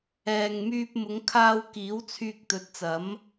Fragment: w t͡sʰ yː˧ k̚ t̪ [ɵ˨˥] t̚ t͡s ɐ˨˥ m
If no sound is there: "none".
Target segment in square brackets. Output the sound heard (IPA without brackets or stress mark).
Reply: ɵ˨˥